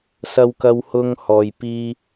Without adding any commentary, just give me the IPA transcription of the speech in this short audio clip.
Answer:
s ɐ˧ w k ɐ˧ w h ʊ˧ ŋ h ɔː˨ j p iː˧

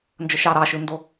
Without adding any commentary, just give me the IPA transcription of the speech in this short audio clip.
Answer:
n d͡ʒ ə ʃ ɑ ɾ ɑ ʃ ɯ n d o

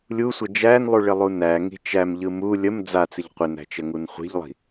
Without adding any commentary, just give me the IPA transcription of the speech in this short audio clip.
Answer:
lʲ u sʷ ə d͡ʒ æ n lˠ u ɭ ɪ lˠ u n æ ŋ i̤ t͡ʃ æ m ʎ ɯ m u lʲ ə m d͡z a t͡s ɪ ʎ qʷ ɪ n æ̤ t͡ʃ ə ŋ u n χʷ i̤ ʎ lˠ i̤

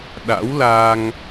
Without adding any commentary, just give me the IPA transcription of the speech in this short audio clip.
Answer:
ɗ a̰˧˥ w l aː˧ ŋ

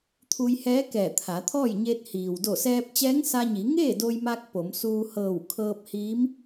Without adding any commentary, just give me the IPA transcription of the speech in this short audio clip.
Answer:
t̪ʰ u˧ j h ɛː˧˥ k ɛː˧˩ t̪ʰ a˩˧ t̪ʰ ɔː˥˨ j ɲ e˧ t̚ h iː˩ w d o˧˩ s ɛː˧ p̚ t͡ɕ ɛː˧˥ ŋ s a˧ ɲ i˩˧ ŋ eː˥˨ d o˧ j m a˧ k̚ p o˩˧ m s uː˧ h ɤː˧˩ w kʰ ɤː˧ p̚ h iː˧˥ m

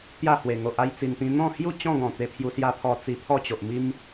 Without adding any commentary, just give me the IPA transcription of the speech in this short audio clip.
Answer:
t̪ j a˥˧ h w e˨˩ ŋ o˨ ʔ a˥˧ j t͡s i˨˩ n t̪ ĩ˧ n̪ ɔ̃˥˧ h j u˥˧ t͡ɕ ɔ̃˥˧ ɡ ɔ̃˨˩ t̪ e˧ pʰ j u˧ s j a˦ pʰ ɔ˧ t͡s i˧ pʰ ɔ˥˧ t͡ɕ o˨ ʔ m i˦ m

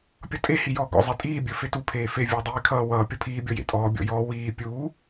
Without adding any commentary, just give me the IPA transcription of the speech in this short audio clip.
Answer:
pʲ ʌ tʼ e h i j ɔː ɡ ɔ̰ zˤ i tʼ iː bʲ ə˞ f e t u pʰ eː f e vʲ ə˞ dˤ iː kʰ ʌː w ʌː pʲ ʌ pʰ iː bʲ ɔ j ḛ tʼ ɔː bʲ ɔ̰ j ɔː w iː pʲ uː

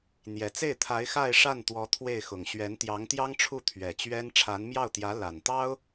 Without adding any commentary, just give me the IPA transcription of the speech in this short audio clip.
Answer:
n̪ j ɛ˨˩ t͡s e˥˩ ɪ̯ t̪ʰ a˧˥ ɪ̯ x a˥˧ ɪ̯ ʂ a˥˩ n t̪ w ɔ˧˥ t̪ʰ w e˥˩ ɪ̯ x ʊ˨˩ ŋ ɕ ɥ ɛ˧˥ n t̪ j ɑ˧˥ ŋ t̪ j ɑ˥ ŋ ʈ͡ʂʰ u˥˩ t̪ʰ ɥ ɛ˨˩ t͡ɕ ɥ ɛ˥ n ʈ͡ʂʰ a˧˥ n m j ɑ˥˩ ʊ̯ t̪ j ä˧˥ l a˨˩ n t̪ ɑ˥ ʊ̯

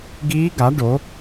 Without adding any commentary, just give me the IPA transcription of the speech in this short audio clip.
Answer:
ɡ iː˦˥ ɡ a˨˥ ɖ o˨˥

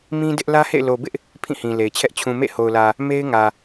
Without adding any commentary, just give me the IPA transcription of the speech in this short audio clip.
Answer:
m ĩ˦ d ɪ˦ ʔ l ä˦ h ḛ˦˨ ɪ̯ l o˨ b ɪ˦ ʔ | pʰ ĩ˦˨ h ĩ˨ l e˨ ɪ̯ t͡ɕʰ ɛ˦ ʔ t͡ɕʰ ũ˨ m ḛ˦˨ h o˨ ʊ̯ l ä˨ | m e˦ ɪ̯ ŋ ä˨

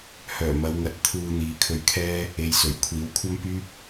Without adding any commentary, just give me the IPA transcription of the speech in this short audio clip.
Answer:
h œː˨˩ m ɐ˨˧ w ŋ ɐ˨ t̚ t̪ʰ uː˧ n̪ iː˨ kʰ ɵ˧ ɥ kʰ ɛː˥ | e˨ j s ɵ˨˩ ɥ kʷʰ iː˨˧ w kʷʰ ɐ˥ m p yː˥ p̚

